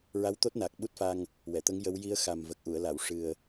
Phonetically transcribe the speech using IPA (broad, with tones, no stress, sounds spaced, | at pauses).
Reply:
ɹ a˧˥ w t̪ o˦˥ t̚ n a˨˩ k̚ ɓ u˦˥ t̚ f a˧ ŋ | w ɛ˨˩˨ t̪ ə˧˥ ŋ j ə˧˥ w j i˧˥ ə̯ x a˨˩ m v ə˨˩ k̚ ʔ u˨˩˨ ə̯ l a˨˩˨ w ʂ ɨ˨˩ ə̯